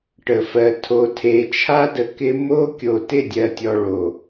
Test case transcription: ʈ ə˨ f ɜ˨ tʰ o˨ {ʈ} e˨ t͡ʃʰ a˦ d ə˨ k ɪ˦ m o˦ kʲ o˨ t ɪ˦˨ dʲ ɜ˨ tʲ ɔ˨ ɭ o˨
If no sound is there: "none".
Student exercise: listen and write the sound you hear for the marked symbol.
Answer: tʰ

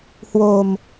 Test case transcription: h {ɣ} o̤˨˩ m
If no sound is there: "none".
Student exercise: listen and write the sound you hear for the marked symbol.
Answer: w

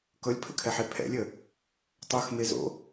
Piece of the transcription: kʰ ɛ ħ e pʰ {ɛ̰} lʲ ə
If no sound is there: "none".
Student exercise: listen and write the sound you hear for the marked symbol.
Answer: ɛ̰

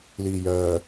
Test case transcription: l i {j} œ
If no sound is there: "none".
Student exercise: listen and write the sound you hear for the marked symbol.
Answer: j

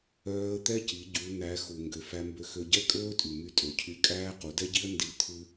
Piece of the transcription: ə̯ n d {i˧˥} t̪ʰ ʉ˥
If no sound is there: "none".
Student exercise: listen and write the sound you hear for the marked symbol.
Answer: i˧˥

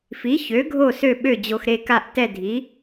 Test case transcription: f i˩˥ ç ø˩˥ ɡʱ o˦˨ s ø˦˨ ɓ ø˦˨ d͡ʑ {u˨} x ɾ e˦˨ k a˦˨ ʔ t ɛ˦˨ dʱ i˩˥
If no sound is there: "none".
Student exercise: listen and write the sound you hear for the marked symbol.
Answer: o˨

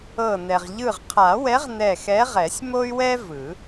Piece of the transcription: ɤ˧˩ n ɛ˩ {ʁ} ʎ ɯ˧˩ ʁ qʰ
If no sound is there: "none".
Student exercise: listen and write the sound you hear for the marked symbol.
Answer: ʁ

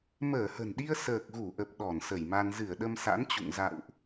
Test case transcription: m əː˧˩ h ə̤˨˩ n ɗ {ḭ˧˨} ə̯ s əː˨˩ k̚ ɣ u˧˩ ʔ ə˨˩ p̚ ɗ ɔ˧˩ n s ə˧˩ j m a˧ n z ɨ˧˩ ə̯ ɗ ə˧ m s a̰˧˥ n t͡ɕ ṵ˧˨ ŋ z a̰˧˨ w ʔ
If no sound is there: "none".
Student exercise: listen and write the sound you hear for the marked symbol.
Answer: i˧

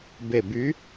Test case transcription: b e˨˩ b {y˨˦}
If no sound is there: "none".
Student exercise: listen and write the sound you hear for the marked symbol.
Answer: y˨˦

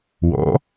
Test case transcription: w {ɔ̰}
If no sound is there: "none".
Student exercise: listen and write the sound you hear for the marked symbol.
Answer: ɔ̰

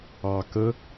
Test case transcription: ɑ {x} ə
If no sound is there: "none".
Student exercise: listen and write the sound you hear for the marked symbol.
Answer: k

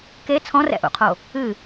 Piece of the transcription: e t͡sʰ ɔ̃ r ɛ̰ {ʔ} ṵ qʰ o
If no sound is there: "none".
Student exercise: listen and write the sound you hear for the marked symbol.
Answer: ʔ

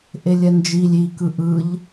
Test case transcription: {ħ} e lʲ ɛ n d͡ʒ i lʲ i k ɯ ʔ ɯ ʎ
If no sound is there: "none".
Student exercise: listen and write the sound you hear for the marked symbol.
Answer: ʔ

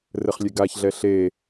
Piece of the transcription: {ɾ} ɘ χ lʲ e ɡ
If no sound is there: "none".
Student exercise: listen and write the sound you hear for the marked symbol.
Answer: r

